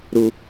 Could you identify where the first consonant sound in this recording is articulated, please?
alveolar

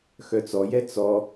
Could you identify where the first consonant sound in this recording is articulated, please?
velar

